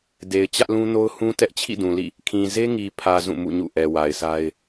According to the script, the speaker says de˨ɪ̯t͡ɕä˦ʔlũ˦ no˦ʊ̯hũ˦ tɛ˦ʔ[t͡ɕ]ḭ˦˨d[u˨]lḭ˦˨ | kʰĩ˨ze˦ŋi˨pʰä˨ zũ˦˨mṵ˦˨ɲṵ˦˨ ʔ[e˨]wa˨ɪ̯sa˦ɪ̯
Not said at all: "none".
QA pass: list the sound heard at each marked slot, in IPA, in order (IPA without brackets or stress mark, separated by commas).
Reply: t͡ɕʰ, ũ˨, ɛ˨